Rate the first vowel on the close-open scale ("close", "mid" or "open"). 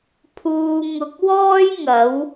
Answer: close